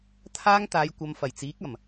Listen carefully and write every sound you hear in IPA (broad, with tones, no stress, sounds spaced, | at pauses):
t̪ʰ aː˥ ŋ t̪ aː˨˧ j kʷ ɐ˨˧ m f ɐ˨˩ j t͡s iː˨˥ k̚ ɐ˨˩ m